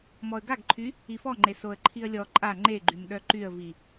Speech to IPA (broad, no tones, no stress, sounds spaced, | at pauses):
m ɔ ə̯ ɡ a ɡ ǃʰ y | i f ɔ ŋ͡ǃ e s o ə̯ ǃʰ i ə̯ lʲ ɔ ǃʼ a ŋ͡ǃ e ɡ͡ǃ y m ɗ œ ǃ y ə̯ v i